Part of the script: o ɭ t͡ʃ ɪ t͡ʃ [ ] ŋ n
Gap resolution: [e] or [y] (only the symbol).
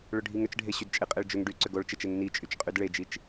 e